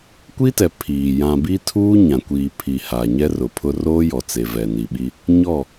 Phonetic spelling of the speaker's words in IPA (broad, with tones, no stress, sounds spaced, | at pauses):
kʷ i˦ t ɛ˨ pʰ iː˨ j ã˨ b i˦ tʰ uː˦ ɲ ã˨ kʷ iː˨ pʰ i˨ h a˨ ɲ ɛ˦ r ʊ˨ pʰ ʊ˦ r oː˦ j ɔ˨ t͡s e˨ v ɛ˨ n i˨ ɓ i˦ | ɲ ɔ˦˨